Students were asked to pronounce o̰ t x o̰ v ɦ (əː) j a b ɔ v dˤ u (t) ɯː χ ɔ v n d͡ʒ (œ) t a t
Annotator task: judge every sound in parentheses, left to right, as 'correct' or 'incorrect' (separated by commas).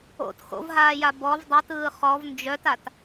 incorrect, correct, correct